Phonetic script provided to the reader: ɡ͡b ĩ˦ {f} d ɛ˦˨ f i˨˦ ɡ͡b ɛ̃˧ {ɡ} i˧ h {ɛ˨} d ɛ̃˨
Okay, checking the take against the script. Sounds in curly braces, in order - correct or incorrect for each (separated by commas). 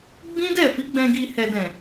incorrect, correct, correct